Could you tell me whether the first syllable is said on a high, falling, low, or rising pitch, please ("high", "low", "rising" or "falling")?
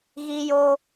high